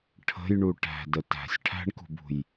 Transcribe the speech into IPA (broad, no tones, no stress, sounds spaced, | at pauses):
ʈʰ ə̤ j ɳ u ʈ æ̤ d ə t æ̤ sʲ ʈʰ æ̤ ɳ k ṳ b ṳ j